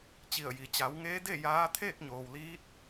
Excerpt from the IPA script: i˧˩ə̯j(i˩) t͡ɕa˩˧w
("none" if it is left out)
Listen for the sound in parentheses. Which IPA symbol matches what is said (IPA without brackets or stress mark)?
i˩